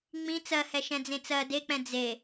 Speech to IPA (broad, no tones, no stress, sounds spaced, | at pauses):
ŋ͡m ĩ t͡s ɜ h ɛ ʃ ɛ̃ d͡z ẽ t͡s ɜ d e k͡p ɛ̃ d͡z e